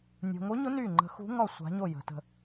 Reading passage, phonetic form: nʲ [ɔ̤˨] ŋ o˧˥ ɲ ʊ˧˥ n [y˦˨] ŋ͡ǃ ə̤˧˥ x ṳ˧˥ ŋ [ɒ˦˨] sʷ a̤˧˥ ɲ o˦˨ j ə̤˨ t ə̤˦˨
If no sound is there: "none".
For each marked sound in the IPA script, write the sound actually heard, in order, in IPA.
o̤˨, y˦˨, ɒ˦˨

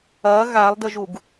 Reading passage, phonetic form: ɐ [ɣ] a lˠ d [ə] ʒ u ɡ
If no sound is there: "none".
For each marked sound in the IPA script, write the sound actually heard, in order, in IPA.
ɣ, ə

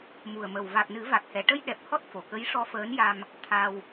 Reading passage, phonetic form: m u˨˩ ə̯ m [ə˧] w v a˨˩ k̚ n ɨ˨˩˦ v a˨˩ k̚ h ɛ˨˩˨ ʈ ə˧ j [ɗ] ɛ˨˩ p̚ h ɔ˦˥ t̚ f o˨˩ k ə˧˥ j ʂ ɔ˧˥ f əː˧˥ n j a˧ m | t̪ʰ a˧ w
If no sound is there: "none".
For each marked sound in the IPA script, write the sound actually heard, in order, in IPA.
ə˨˩, ɗ

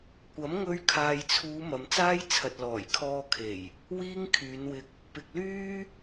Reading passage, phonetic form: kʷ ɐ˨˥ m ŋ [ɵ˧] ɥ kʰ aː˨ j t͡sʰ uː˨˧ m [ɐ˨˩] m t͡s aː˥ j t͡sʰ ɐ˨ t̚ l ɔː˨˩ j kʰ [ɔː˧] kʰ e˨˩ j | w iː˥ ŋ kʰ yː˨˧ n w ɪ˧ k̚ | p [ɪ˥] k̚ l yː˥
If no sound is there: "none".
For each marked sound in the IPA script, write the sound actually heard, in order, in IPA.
ɵ˧, ɐ˨, ɔː˧, ɪ˨

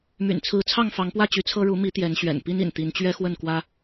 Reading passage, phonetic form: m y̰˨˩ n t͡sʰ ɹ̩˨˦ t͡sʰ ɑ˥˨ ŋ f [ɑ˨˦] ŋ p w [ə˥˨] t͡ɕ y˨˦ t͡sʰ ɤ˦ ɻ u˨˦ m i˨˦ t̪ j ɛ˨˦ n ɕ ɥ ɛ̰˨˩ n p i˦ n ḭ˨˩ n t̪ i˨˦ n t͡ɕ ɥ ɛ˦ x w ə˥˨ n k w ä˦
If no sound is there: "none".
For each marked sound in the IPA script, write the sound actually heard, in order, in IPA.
ɑ˨˦, ä˥˨

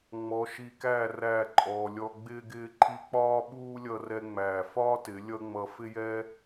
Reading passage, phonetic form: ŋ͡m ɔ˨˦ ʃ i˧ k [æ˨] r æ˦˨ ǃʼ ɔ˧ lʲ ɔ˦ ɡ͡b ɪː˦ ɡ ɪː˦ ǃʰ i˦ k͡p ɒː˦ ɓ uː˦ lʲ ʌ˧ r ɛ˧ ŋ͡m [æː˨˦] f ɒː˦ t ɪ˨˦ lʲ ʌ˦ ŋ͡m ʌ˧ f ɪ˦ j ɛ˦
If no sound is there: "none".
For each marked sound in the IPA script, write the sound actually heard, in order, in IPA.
æ˦˨, æː˨

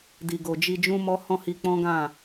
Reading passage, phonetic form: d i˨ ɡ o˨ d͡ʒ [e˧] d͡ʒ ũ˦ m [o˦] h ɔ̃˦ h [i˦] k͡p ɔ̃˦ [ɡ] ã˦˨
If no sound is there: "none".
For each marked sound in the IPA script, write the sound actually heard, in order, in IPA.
i˧, ɔ˦, i˧, ɡ

